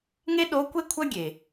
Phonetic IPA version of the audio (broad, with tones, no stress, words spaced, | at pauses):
ŋe˥ɗo˧˥ kʷe˥kʷʰɐ˥ɡʲe˩